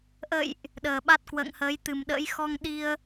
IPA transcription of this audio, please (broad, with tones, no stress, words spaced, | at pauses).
ʔə̰˧˨jʔ | ɗəː˨˩ɓa˦˥t̚ kwə̰ː˧˨ŋhəː˨˦jt̪ɨ˨˩mɗə̰ː˧˥j xɔ˧ŋɗi˧ə̯